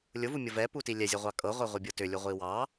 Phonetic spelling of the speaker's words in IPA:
lʲ ʊ v u mʲ ɤ v ɛ p u t i lʲ ɛ zʲ ɤ ʁʷ ɑ kʼ ɤ ʁʷ ɛ ʁʷ i bʲ ɤ t ʏ lʲ u ʁʷ i w ɑ

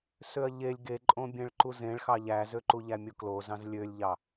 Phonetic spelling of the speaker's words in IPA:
s ø ɐ̯ ʎ e lʲ ɡ e ǃʼ õ bʲ ẽ ɭ ǃ u z ẽ ɭ x ɑ ʎ æ z ø ǃ u ʎ æ mʲ o k l o z ɑ̃ z lʲ ø lʲ ʎ ɑ

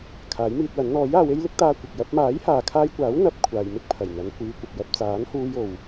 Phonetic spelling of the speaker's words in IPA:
kʰ aː˨˥ j m iː˧ t̚ w ɐ˨˥ n n̪ ɔː˨˥ j aː˨˧ w e˥ j l ɪ˥ k̚ t̪ aː˧ kʷ ɪ˨ k̚ j ɐ˥ p̚ m aː˨˥ j h aː˨ kʰ aː˧ j kʷ aː˨˥ w n̪ ɐ˧ p̚ kʷʰ aː˨ j m ɪ˥ k̚ pʰ ɐ˨˩ j n̪ ɐ˨˧ n kʷ iː˨˧ kʷ ɐ˨ p̚ j ɐ˧ p̚ t͡s aː˨˥ n h uː˧ j o˨ w

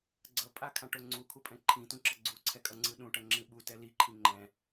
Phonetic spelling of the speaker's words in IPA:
ɡ͡ǀ ʌ pʼ a kʰ ã ʈ o ŋ͡ǀ u kʰ u pʼ ɛ̃ ǃʰ ĩ t ũ ǁ ʌ ɡ͡ǀ u ǀʰ ɛ kʼ ʌ ŋ͡ǀ ɯ ɗ ũ ʈ ʌ ŋ͡ǁ ĩ ɓ u t ɛ l i ǃʰ ĩ ŋ͡ǃ ɛ̃

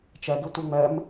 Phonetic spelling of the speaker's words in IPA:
t͡ʃ ɛ ɡ i tʷ i ŋ͡m ɛ m

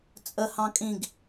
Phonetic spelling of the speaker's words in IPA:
t͡sʼ ə h ɑ̃ kʼ ĩ ɡ

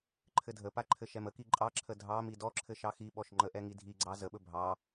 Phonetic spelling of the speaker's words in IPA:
ǃʰ ɘ dʱ ə p a ǃʰ ɘ ʃ ɛ m ə k i ǃʼ ɑ ǁʰ ə dʱ ɑ m i d ɔ ǁʰ ɘ ʃ ɑ x i ɓ ɔ ʃ ŋ͡ǃ ə ʔ ɛ ŋ i dʱ i ɡ͡ǀ ɑ z ə ɓ ɵ bʱ ɑ

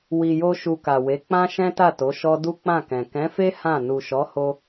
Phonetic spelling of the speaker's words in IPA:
w i˨ j o˧ ʃ u˧ k a˨ w e˨˦ k͡p ã˦ ʃ ɛ̃˦ t a˦˨ t o˨˦ ʃ ɔ˦ d u˦ k͡p ã˦˨ k ɛ̃˨ k ɛ̃˨˦ f e˦ h ã˦˨ n u˨ ʃ ɔ˨˦ h o˧

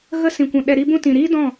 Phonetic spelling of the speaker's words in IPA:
ɣ ə˦ s ĩ˨ kʷ ũ˨ ɗ ɛ˧ ɾ i˧ b ũ˧ t ĩ˨ ɾ iː˦ d ɔ̃˦˨

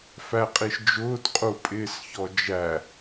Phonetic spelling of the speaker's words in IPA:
f æ qʼ i ʃ d͡ʒ ʊː t qʼ u pʼ ɪː s ç ɔ d͡ʒ æ

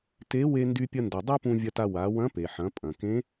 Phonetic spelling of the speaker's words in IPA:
t e˧˥ w e˧ n d y˧ pʲ ɐ˧ n d ʌ˩ dˤ a˥ p ũ˧ vʲ ɐ˧ t a˧ w a˩˧ w ɐ̃˧˥ p e˩ ħ ɐ̃˩˧ pʼ ɐ̃˩ k ẽ˧˥

